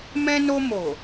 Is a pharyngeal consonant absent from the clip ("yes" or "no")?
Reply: yes